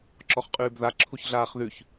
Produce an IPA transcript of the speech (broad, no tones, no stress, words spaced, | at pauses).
ǁɔχqʼʉːbða ǁʰuçɮaːχðʉç